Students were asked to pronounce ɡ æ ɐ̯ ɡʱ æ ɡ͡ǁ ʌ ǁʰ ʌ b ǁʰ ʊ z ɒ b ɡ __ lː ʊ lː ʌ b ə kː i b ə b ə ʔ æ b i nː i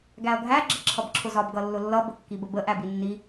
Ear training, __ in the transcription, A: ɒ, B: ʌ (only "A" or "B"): B